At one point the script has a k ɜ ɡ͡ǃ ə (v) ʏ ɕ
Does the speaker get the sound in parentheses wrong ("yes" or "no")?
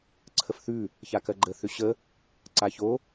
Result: yes